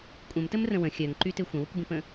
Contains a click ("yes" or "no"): yes